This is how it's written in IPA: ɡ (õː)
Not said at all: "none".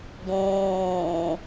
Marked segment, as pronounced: õː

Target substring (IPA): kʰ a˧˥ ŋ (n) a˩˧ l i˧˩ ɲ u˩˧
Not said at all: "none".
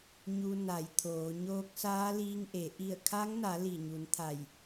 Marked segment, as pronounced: n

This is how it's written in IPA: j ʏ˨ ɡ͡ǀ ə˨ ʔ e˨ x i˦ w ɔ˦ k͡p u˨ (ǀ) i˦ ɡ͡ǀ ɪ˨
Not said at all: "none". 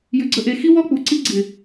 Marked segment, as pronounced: ǀ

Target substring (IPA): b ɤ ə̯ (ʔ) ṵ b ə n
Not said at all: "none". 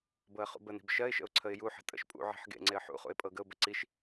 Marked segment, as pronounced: χ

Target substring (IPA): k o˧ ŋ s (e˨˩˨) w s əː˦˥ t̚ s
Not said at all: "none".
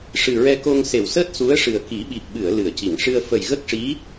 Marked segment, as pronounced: e˨˩˨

